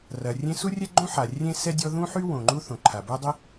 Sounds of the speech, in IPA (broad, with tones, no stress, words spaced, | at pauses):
rɐ˩rʲẽ˥ su˥rʲɛ˥ɡ͡ǃõ˥ ħa˩ rʲẽ˥sɛ˥dʲɔ˥ ðũ˥ħy˥ wõ˩ŋ͡ǃu˥ θõ˩ǃʰa˩bo˥dˤi˥